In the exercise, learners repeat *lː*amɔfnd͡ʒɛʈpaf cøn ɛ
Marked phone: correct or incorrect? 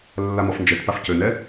correct